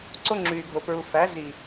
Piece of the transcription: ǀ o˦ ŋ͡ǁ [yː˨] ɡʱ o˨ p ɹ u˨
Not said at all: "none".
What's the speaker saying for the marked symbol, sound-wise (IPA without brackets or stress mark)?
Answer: yː˨